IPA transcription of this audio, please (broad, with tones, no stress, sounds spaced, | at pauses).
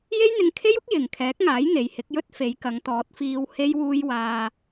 j e˥ j n̪ ɪ˧ ŋ kʰ e˥ j ʊ˥ k̚ j ɪ˨ ŋ kʰ ɛː˨˥ k̚ ŋ aː˨˥ j ŋ e˨˧ j h ɪ˨˥ k̚ j ɵ˥ t̚ f e˨˧ j k ɐ˨˧ ŋ t̪ ɔː˨˥ t̚ f iː˧ w h e˥ j w uː˥ j w aː˧